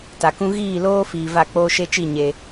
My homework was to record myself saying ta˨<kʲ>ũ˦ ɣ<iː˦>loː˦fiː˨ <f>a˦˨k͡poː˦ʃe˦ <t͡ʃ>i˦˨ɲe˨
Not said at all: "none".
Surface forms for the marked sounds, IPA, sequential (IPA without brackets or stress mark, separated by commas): k, iː˦˨, v, t͡ʃ